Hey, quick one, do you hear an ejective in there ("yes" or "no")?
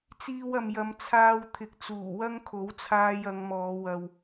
no